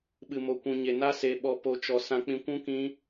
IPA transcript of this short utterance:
ɓɨ˨mo˨kʷũ˨ ɲe˨na˧ se˨ɓɔ˨ po˨t͡ʃɔ˨ sã˨k͡pĩ˨kʷũ˧ kĩ˧

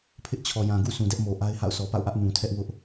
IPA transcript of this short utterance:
pʰɪ˦ʔt͡ɕʰɔ˨jã˨ɡṵ˦˨ sũ˨dɛ˦ʔmo˨ ʔa˦ɪ̯ha̰˦˨ʊ̯ sʰɔ˨pa̰˦˨ʊ̯ʔä˦ʔ nũ˨tʰɛ˦ʔ wʊ˦ʔ

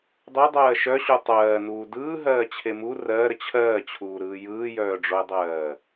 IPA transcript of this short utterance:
dˤedˤɜː ʃœɕu tˤɜːnuː dɯːɦɜːt͡ɕʰe mu rɜːɾə t͡ɕʰɜːt͡ɕʰuːɾɯː jɯːjœːɖ͡ʐoe̯dˤɜː

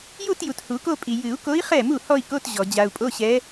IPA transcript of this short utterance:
ju˥˧tju˨t hu˨˩˦ko˥˧pʼi˨ jɨ˨˩˦u̯ko˧˥i̯ χɛ˥˩mu˥˩ hɔ˥˧i̯ko˧˥˧t ʑɔ˨ d͡ʑa˨u̯pʼo˧˥˧ɕɛ˧˥

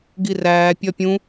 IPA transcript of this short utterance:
ɡiræː pʲɒpʲũ

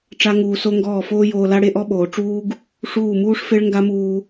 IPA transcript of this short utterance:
ʈ͡ʂa˦ŋuː˧so˦ ŋɡɔː˦˨foː˦joː˧la˦ ɽe˦ʔɔ˦ɓoː˨ ʈ͡ʂuː˦ɡ | ʂuː˦˨muː˦ʂfe˦ɭ ŋɡa˦muː˧

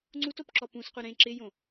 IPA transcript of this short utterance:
ŋ͡ǀutopǁɔ pũsqʷɪ ɾẽ ǁɪjõ

